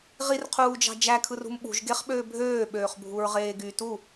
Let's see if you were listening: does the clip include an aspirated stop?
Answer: yes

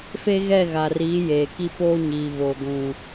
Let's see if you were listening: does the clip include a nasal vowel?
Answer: yes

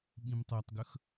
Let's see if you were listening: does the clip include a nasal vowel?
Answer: yes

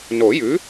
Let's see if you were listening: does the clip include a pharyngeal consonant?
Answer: no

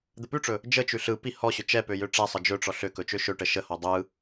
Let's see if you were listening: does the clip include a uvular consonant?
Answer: no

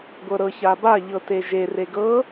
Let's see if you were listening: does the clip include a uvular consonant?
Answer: no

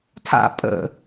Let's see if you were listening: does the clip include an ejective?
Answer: yes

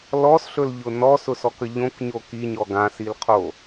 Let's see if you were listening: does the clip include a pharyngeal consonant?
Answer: no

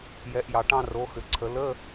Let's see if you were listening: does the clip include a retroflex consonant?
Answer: yes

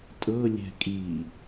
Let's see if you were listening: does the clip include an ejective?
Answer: yes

